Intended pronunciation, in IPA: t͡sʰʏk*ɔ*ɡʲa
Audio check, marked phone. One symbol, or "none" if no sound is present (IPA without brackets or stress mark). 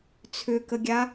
ə